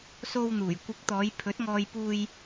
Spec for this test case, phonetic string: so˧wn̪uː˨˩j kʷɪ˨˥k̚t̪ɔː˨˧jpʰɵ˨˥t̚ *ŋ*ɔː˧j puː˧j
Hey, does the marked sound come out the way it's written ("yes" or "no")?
yes